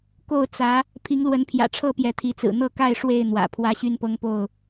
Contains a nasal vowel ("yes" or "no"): no